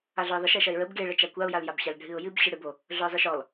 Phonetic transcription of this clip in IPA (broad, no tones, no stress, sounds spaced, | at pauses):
a ɮ œ ɪ̯ ðˤ ə ʃ ɛ ʃ ɐ ɪ̯ ɹ ə b ɡ e ɭ ə t͡ʃ a kʷ a ʊ̯ j a l j a b ɕ a l ɖʱ ɨ ʊ̯ j ɨ b ɕ ɨ ɽ ɨ b o | ɮ œ ɪ̯ zˤ ɨ ʃ ɔ l